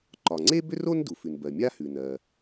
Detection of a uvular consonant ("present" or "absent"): absent